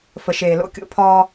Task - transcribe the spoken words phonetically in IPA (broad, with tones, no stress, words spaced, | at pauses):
fə˨ʃeː˨lo̰˦kʲo̰˦˨ pʰɒː˦